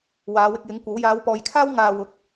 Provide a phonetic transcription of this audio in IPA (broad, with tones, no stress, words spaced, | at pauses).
waː˨˧wɪ˧k̚jɪ˨˥ŋ kʷɐ˨˥w jaː˨˧wpɔː˨jkʰaː˥w ŋaː˧wʊ˨˥k̚